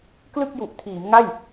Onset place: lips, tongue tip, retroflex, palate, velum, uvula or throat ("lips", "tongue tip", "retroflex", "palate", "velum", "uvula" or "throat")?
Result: velum